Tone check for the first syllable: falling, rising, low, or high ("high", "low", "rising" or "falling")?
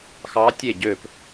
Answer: rising